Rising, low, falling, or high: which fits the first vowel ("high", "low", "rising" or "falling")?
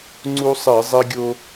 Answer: high